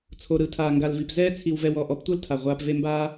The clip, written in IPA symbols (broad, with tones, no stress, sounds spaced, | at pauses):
t͡sʰ o˨ ɾ ɯ˨˦ tʰ aː˨ ŋ ɡ a˨ l v i˨ p z ɛː˧ t͡sʰ i˨ w v ɛ˨ w ɔ˦˨ ʔ ɔ˧ p tʷ ɤ˦ l tʰ a˨ ʁʷ aː˧ p v e˦ m b aː˦